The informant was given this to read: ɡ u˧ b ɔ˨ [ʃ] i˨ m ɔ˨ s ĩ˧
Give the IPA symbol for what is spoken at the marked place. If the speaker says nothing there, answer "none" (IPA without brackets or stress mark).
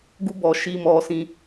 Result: ʃ